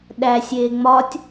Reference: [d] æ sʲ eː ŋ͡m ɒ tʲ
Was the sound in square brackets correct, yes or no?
no